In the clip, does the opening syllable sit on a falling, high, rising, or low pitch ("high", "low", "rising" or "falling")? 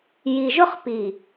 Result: low